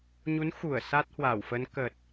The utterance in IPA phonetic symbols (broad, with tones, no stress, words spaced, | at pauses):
ɲu˨˦n xu˧˩ə̯ sa˦˥t̚hwa˧˩wfə˨˦n kə˨˩t̚